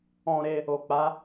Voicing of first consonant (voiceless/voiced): voiced